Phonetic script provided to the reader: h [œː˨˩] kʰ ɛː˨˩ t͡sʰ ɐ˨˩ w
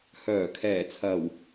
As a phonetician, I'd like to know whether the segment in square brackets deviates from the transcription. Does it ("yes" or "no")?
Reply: no